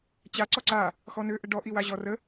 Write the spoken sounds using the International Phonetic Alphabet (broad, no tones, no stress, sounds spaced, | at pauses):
t͡ɕ a ǀ ɔ ǀ a | x ɔ n ø ʔ ə ɖ ɔ ʔ i w a ʑ ɔ r ə